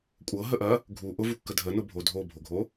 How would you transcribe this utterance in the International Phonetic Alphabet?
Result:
kʷʼ ɤ ɦ ə ʔ ɐ | ɡʱ u ʔ ʊ v u kː ə dʱ ə n ʊ bʱ o dʱ o bʱ o ɡʱ o

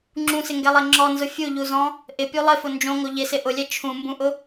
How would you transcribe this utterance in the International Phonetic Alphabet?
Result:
ŋ͡ǁ ũ s ɪ ŋ ɡ ɛ lˠ ɛ ŋ͡ǁ ɔ n z ʊ fʲ u ʎ u z ɔ̃ | ʔ ɪ pʲ u lˠ ɪ f ʊ n d͡ʒ õ ŋ o ʎ ɪ s ɪ ʔ ʊ lʲ ɛ t͡ʃʰ ũ m b ũ ʔ ʊ

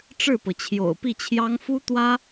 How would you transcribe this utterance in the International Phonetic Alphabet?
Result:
ʈ͡ʂ ɻ̩˥˩ p ɤ˩ t͡ɕʰ j o̰˨˩ ʊ̯ p i˥˩ t͡ɕʰ j ɑ˥ ŋ f u˥ t̪ w ä˥

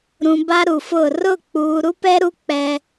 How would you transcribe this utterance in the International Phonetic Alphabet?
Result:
ɾ ũ˨ b a˦ ɾ u˨ f ʊ˦˨ r ʊ˦˨ k͡p uː˨ ɾ u˦ p ɛ˦ ɾ u˦ k͡p ɛ˦

